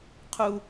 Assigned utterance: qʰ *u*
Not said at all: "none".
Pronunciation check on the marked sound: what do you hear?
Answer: u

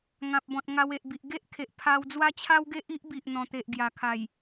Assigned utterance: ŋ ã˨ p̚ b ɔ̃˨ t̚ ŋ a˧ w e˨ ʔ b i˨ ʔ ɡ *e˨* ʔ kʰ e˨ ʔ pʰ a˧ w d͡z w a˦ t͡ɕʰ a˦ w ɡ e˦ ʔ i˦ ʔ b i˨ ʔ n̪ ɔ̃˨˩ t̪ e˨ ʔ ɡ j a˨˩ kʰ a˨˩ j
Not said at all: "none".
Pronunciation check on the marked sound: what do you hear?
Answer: e˦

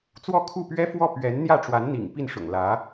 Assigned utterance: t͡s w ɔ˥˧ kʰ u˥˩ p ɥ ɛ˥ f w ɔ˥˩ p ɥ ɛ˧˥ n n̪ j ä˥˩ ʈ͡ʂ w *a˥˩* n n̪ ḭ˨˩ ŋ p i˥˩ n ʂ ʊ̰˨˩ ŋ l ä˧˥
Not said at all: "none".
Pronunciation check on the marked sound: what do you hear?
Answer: a˧˥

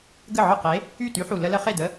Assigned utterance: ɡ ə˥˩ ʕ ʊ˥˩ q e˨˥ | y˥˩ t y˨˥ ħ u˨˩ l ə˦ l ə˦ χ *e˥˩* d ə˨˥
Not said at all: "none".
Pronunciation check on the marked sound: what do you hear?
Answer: e˥˩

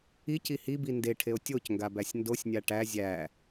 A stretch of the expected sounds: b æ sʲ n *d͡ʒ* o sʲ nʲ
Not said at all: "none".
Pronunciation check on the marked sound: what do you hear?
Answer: d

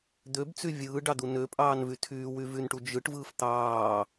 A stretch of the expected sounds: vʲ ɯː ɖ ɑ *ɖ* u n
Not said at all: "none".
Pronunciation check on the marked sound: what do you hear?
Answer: d̪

